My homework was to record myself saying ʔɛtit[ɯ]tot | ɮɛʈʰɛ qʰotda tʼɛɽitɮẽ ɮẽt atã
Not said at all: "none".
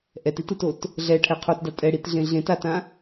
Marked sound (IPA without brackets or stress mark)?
ɯ